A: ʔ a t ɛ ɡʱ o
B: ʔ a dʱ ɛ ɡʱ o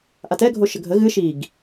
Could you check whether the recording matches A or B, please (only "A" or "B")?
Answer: A